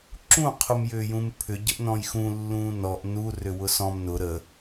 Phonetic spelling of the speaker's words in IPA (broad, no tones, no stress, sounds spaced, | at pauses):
ǁ ũ qʰ u m j ʏː j ũ m pʰ ʏ ɟ ə ʔ n ɔ̃ j x ũ lː ũː n ɔ ʔ n u r ʏ w ʊ s ɔ̃ m n ʊ ɾ ə